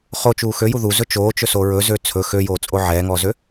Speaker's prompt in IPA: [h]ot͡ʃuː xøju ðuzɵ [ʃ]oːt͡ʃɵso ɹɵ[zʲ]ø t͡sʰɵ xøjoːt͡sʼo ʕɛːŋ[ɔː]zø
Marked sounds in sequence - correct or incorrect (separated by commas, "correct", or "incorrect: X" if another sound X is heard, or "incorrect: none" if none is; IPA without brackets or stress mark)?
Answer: incorrect: χ, incorrect: t͡ʃ, incorrect: z, correct